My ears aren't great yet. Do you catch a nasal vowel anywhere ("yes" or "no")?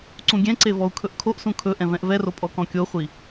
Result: yes